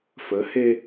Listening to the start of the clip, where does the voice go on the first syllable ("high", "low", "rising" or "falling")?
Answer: rising